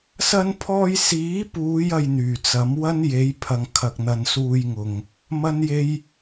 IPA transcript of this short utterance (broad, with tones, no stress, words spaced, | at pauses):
sɐ˧npʰɔː˧j siː˨˥puː˨˧j ɐ˧jn̪yː˨˩t͡sɐ˨˥m wɐ˥nje˨˥jpʰɐ˨ŋ kʰɐ˨k̚n̪ɐ˨nsuː˧jŋʊ˨ŋ | mɐ˥nje˥j